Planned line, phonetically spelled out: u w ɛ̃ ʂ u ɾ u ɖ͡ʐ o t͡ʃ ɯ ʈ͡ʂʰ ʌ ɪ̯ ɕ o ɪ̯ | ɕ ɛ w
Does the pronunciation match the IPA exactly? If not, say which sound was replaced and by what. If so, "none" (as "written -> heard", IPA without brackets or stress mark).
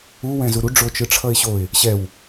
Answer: ʂ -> z